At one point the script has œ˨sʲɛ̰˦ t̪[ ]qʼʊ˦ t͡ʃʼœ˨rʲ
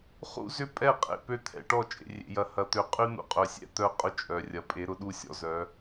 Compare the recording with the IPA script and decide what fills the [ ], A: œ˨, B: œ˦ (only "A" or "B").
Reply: B